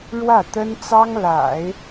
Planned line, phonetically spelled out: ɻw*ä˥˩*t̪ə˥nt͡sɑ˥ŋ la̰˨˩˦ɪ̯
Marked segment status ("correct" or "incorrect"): correct